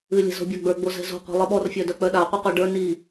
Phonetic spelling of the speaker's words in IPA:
ɨlʲɛ̤ zo̤bʲœɡ͡bə˞ɡ͡bo zɛ̤zo̤qʷɛ̤ lˠɨɓɔrfʲœdœ k͡pœɗaqʷɨqʷa ɖə˞ ni

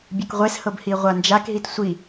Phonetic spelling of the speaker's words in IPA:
bʲɯkʁʷeshɤb hiʁʷand͡ʒakɦit sʷi

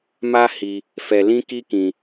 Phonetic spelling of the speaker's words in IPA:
ma˦hi˧ | fɛ˧lĩ˦ki˦kĩ˧

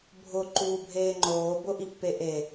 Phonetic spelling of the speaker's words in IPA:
bʱʊ ǃuːbʱeːŋ͡ǃoː bʊʔipːeʔe

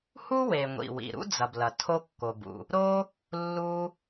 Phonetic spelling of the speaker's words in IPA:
hu˥we˩ ŋʷḭ˩wḭ˩ɾṵ˥ d͡zɐ˩blɐ˩tʰo˧ kːo˩bṵ˩ | ɾo˥ | lːu˧

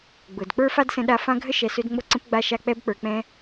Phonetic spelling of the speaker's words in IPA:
ɡ͡bʊ˨d k͡pə˞˦fa˦dsə̃˧ɗa˧ fã˦ɡʱə˦ ʃɛ˨sø˧dŋ͡mo˧ǀə̃˧p ɡ͡ba˧ʃa˧ k͡pɛ˧bk͡pə˞˨k͡pɛ̃˧

